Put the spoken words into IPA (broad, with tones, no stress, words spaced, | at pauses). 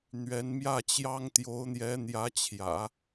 n̪ɥɛ˧˥n mjä˥˩t͡ɕjɑ˥ŋ t̪jo˧˥ʊ̯n̪jɛ˧˥n̪jä˧˥t͡ɕʰjä̰˨˩˦